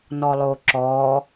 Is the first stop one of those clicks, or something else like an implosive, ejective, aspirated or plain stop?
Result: click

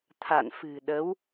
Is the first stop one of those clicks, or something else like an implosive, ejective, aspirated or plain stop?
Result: aspirated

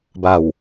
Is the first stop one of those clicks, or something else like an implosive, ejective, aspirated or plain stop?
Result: plain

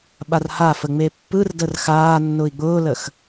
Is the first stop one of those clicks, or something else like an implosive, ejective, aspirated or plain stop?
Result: implosive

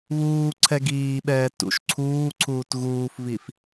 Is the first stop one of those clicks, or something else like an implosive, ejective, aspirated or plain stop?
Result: click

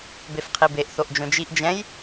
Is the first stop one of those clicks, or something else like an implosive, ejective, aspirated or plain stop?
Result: plain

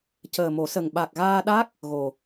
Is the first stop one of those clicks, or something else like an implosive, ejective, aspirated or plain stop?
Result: plain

